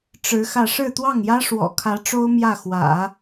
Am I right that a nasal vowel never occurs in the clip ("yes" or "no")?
yes